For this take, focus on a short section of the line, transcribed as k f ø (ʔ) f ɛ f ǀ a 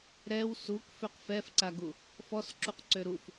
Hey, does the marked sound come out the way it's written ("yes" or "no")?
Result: no